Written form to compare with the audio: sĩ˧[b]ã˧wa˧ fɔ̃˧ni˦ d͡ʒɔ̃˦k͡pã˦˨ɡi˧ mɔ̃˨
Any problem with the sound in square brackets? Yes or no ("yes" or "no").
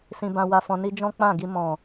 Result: no